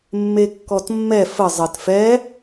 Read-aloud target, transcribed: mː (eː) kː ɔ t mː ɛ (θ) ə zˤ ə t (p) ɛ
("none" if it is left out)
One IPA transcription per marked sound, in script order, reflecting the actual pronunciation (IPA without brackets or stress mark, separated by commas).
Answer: e, f, f